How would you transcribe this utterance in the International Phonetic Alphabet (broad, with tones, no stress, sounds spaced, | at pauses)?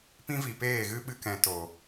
p ĩ˦ v i˨ p eː˦˨ ɣ ɨ˦ ɓ ɨ˧ k ɛ̃˨ t o˨